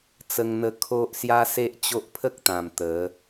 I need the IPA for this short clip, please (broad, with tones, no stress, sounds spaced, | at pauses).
t͡s ə˧ ŋ n̪ ə˧ kʰ o˦ ʔ s j a˦ s e˦ ʔ t͡ɕ o˦ ʔ pʰ ə˦ k̚ t̪ ã˨˩ m t̪ ə˨˦